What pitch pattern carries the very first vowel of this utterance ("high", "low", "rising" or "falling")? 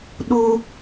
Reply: high